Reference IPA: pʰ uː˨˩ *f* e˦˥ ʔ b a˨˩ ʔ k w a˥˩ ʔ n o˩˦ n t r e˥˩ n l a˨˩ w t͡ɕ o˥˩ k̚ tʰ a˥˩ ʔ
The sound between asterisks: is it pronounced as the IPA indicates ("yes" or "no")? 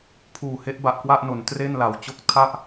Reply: no